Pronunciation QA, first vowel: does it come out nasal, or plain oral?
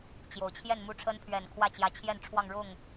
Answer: oral